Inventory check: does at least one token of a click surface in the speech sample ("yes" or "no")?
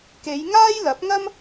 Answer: no